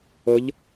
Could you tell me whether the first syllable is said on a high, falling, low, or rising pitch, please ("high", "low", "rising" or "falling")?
rising